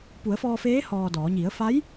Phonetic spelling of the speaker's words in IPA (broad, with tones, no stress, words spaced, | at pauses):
pu˩˧ə̯fɔː˧feː˧˥ hɔː˧dɔː˩˧ ɲi˩˧ə̯fa˧˥j